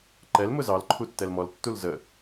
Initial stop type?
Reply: click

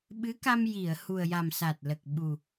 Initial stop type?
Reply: implosive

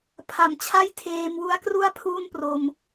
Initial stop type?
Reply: aspirated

